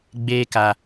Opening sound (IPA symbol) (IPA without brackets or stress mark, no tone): ɡ͡b